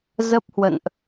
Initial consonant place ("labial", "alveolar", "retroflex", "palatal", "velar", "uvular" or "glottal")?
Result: alveolar